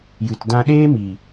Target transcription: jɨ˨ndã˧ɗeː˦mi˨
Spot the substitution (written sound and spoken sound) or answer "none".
n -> t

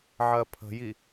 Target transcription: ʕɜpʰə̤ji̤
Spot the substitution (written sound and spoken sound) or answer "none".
i̤ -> i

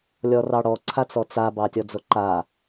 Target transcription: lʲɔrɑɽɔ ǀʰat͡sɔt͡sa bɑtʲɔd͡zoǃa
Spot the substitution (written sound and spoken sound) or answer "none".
none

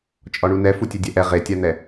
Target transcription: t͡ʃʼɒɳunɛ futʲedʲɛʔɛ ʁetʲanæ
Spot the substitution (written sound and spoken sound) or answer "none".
æ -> ɛ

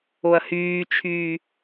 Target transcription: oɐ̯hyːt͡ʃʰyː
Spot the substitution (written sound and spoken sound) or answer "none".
none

